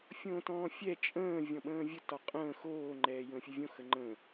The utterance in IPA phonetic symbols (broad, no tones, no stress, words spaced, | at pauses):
fʲõːtɔ̃ːfʲɛ t͡ʃʼə̃ː vʲɔ̃ɓə̃ːvʲə tɒqʼə̃ː xoː ŋ͡ǃɛːjə̃ːfʲəvʲõ xəŋ͡ǃə̃ː